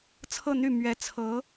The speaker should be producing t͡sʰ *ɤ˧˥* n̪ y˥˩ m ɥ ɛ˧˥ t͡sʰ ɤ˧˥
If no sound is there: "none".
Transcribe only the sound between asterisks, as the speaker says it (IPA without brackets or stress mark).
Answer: ɤ˥˧